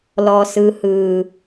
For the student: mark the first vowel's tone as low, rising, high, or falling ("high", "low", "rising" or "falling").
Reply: low